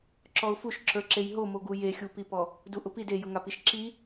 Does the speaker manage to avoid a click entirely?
no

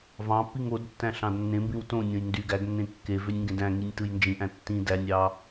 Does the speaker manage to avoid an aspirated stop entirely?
yes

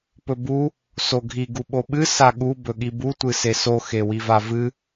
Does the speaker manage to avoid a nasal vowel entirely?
yes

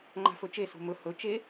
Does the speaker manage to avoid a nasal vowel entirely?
yes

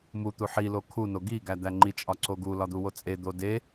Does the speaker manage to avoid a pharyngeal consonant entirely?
no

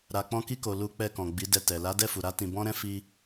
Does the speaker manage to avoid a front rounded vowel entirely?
yes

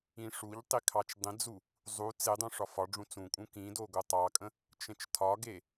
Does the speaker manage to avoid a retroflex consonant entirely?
no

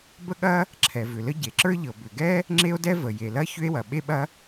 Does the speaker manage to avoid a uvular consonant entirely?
yes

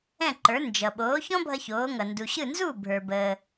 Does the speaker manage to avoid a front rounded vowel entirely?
yes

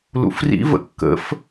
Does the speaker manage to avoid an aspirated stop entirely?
yes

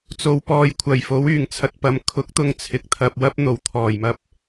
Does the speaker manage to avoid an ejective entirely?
yes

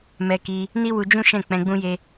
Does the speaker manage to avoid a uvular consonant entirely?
yes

